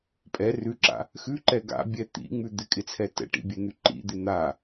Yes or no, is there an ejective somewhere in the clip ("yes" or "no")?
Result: yes